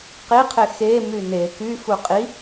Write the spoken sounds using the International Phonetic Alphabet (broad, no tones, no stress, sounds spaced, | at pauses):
q i qʰ e x e m y n e k y f u qʼ i